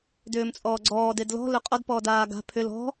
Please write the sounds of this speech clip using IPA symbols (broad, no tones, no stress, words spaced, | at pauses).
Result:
dʏːmt͡sʼɔːɡ͡ǀɔː dedlɔ̤ lɵqʼɔd pɔːdaːɡa̤ pʰʏ lɔ̤